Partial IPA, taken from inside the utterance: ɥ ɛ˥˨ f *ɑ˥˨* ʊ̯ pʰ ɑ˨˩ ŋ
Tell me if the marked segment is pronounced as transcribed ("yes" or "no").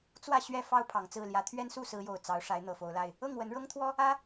yes